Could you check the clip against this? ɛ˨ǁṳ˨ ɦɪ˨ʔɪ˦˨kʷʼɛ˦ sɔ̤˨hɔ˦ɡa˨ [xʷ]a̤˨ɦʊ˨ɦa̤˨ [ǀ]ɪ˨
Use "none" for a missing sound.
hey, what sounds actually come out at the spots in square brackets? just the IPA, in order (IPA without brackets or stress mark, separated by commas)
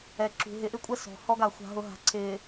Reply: xʷ, ǀ